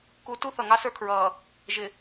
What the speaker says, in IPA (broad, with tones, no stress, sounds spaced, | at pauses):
k u˨ t u˦ θ ʌ˨ ŋ ɑ˦ s ə˞˦ kʰ ɹ ʌː˨ | ʒ ɪ˨